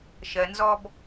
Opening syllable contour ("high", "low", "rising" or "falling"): low